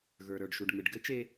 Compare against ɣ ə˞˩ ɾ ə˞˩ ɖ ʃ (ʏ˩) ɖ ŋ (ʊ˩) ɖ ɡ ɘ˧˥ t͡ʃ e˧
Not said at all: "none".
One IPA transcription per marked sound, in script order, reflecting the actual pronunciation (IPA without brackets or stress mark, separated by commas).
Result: u˩, ɯ˩